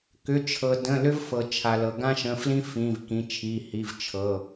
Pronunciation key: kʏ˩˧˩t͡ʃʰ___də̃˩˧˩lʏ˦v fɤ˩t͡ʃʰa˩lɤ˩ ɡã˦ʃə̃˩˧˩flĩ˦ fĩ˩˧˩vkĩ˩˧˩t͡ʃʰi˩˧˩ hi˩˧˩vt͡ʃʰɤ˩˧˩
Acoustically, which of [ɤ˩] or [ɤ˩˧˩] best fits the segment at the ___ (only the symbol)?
ɤ˩